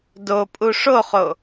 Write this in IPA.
dopʼu ʂoχo

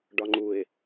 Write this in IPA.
ɖɒŋ͡ǃuɪ̯

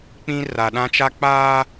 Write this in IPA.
k͡pĩ˦ ra˨ɗã˦t͡ʃa˦ k͡paː˦

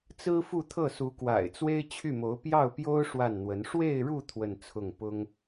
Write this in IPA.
t͡sɹ̩˥fu˥˧t̪ʰɤ˥˩ su˧˥kwa̰˨˩ɪ̯t͡swe˥ɪ̯ t͡ɕʰy˥˩mo˧˥ʊ̯ pjɑ˥˩ʊ̯pjo˥ʊ̯ ʂwa˥˩nn̪wə˧˥n ʂwe˥˧ɪ̯ɻu˥˧ t̪ʰwə˥˧nt͡sʰʊ˥˩ŋ pʊ˥ŋ

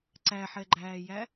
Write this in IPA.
ǀæħɛɡ͡ǃæːjæ

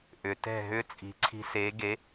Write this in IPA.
ʔʏ˩tɛ̤˥˩ ɦʏː˥t͡sʼi̤˩˥ ǀʰi̤˧seː˩˥ ɡe˩˥

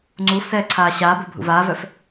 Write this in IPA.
ŋ͡ǀuːfsɛː ǀʰaːɕaːbo bʱṵvaːvœf

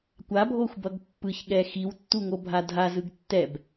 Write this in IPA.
kʷabʱoxʷbʌɡ pːɯçɠɛ xiwtːuŋo bʱadʱazɯɡ tːɛb

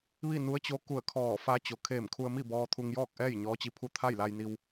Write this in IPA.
ʋi˥˨nu˧˥ə̯t͡ɕo˧˥ ku˧˩ə̯kʰɔː˧˩fa˧˥ t͡ɕo˩kʰeː˧˩mkʰu˧ə̯mi˥˨ bɔː˧t̪ʰu˧ŋjɔː˥˨k̚ʔɛː˥˨j ɲɔː˧˥t͡ɕi˧pʰu˥˨ t̪ʰa˥˨jla˧jni˧w

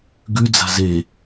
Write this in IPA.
ɡʉd͡za̤ ze

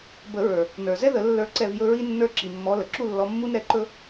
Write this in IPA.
bə˨˩˦ɹə˞˩ | nə˞˩ zɛ˥ ðə˨˩˦ lːə˞˥ǀɛ˥˧v jɵ˥ɹi˥nːə˞˥˧ ǁi˩mːɔ˨˦lə˩ ǁu˥˧lːɔ˨˦mːu˥n ɾɛ˧˩ǃɵ˥

